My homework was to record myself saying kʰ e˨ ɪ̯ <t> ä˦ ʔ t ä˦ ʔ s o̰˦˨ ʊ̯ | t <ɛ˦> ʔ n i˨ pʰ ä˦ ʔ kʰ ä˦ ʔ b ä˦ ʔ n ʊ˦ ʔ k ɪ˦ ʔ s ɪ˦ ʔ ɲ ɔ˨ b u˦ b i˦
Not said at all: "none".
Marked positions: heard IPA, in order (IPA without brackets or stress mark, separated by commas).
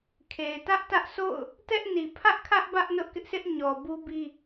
t, ɛ˦